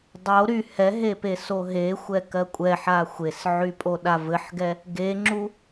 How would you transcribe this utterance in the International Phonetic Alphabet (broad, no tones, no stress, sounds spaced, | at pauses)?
dˤ o ɾ y h ɛ ɦ e p e s o ɦ e xʷ ɛ k ɜ kʷʼ ɛ ħ a xʷ e s ʕ y pʼ o ɗ a v ɘ ħ ɡ ɛ | ɡ e ŋ͡ǁ u